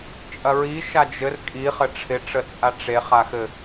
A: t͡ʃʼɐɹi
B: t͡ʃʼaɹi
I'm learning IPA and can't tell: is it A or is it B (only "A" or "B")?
A